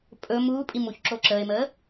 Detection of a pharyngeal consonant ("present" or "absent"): absent